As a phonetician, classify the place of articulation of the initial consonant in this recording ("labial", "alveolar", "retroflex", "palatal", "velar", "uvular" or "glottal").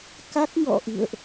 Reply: velar